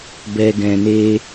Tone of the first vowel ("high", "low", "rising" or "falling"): low